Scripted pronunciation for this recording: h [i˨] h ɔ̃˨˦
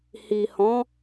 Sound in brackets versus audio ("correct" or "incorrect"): correct